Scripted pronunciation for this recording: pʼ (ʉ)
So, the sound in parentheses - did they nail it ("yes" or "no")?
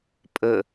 no